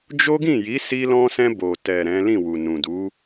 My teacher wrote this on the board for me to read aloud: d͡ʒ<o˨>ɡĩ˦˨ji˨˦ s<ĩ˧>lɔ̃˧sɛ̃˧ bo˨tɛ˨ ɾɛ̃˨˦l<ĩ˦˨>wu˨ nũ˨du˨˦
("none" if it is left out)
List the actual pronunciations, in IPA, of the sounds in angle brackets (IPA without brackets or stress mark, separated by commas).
o˦, i˧, ĩ˦˨